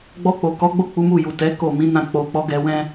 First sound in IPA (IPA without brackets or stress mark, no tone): ɡ͡b